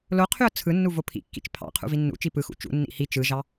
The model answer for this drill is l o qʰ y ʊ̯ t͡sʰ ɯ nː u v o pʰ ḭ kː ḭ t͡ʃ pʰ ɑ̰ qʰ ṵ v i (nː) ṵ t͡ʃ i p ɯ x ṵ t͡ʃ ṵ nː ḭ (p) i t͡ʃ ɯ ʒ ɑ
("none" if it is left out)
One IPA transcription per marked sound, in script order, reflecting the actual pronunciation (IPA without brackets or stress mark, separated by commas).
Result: nː, h